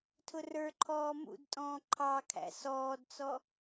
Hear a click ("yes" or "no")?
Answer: yes